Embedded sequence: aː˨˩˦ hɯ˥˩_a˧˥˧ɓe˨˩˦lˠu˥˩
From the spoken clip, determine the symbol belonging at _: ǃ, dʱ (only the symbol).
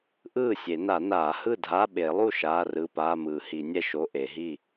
dʱ